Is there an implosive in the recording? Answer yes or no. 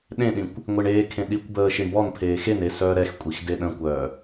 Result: yes